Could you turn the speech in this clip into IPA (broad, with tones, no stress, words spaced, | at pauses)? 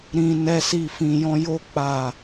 ɾĩ˧ nɛ˦si˦˨fĩ˧jɔ̃˦ jo˦ k͡pa˦˨